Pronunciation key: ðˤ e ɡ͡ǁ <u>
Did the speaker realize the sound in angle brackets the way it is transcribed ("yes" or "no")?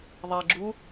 yes